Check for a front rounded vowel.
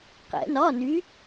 present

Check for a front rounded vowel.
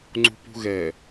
absent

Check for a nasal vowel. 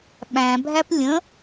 present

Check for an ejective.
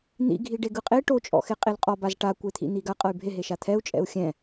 present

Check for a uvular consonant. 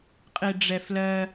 present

